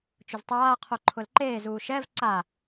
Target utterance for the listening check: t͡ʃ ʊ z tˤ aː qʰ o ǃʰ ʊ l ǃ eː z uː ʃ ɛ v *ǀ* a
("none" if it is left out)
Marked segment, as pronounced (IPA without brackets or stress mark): ǀ